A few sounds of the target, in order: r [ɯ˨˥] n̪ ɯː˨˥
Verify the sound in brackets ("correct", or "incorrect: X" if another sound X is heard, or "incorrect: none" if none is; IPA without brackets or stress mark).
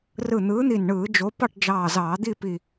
incorrect: ɯ˧˩